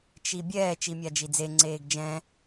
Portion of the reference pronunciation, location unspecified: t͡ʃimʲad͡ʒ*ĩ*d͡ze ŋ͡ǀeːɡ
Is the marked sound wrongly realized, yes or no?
yes